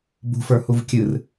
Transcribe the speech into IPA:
b ṳ f ə˞ h u v kʲ ɨ r

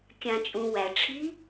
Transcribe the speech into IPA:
kʲ ã t͡ʃʼ ũ w æ ʈ͡ʂʰ i

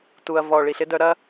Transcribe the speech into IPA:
t u˩ ɐ̯ v ɔ˩ ɭ i˩ ɬ ɪ˥ d œ˧ ɾ ɐ˥

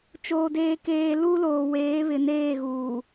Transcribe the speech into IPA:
t͡ʃ oː˨ d eː˨ k eː˨ l u˦ l oː˨ w eː˨˦ β ɪ˨ n eː˦˨ ɣ uː˨

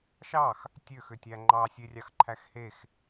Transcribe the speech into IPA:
ʃ ɑ x | tʲ ø x ø tʲ æ ŋ͡ǃ ɑ sʲ e rʲ ɑ x ǃʰ æ x h e x

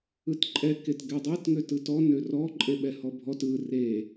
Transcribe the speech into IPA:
ɯ t ǃʼ ɛ k e t ɡ ɛ dˤ ɛ t ŋ ø t ɯ t ɔ n ø r ɔ ǃʼ e ɓ ɛ h ɔ bʱ ɔ t ɯ r e

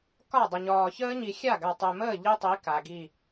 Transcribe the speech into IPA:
k ɒ˦˨ dˤ ə˨ ɲ ɒː˨ ç əː˦ ɲ i˨ xʲ a˦˨ ɡ a˨ tˤ e˨ m əː˦˨ ʎ i˦ tˤ i˨˦ k a˨ ɡ i˦˨

